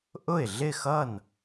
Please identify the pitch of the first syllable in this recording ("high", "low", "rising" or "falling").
falling